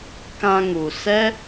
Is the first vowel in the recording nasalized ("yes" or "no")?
yes